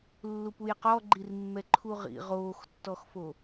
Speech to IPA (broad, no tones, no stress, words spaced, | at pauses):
lːupujqɔ ɡ͡ǃirmːɛǃʰuʁḭ ʁoːxtːɔxfo